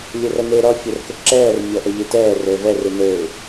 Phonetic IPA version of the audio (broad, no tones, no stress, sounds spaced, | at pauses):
lʲ ɘ r ɐ n e ɾ ɔ fʲ ɐ r k ɘ ǁ ɛː r mʲ ɔ ʔ ɐ ʎ e t ɛː r ɘː v ɛ r ɨ n ɘː ɪ̯